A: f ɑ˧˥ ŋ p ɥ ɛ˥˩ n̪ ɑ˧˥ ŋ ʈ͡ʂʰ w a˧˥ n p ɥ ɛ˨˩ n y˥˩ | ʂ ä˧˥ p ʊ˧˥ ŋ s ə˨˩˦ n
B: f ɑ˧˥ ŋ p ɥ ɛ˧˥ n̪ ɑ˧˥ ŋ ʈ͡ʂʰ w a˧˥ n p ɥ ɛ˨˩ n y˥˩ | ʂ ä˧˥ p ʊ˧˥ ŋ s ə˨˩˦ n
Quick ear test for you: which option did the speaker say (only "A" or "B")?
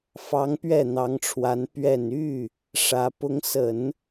A